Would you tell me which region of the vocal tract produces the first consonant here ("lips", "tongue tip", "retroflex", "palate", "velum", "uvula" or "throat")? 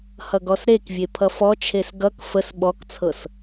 throat